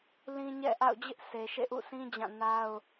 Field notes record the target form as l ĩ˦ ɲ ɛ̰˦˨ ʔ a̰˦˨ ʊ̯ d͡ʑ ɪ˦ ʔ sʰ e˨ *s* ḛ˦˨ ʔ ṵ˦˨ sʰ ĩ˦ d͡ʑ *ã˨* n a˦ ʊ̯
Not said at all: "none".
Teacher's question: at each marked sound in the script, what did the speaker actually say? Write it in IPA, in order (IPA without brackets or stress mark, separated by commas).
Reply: ʃ, ã˦˨